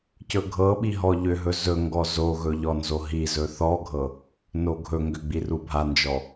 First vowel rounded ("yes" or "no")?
yes